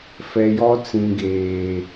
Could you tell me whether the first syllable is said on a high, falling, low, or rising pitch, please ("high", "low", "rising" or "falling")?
low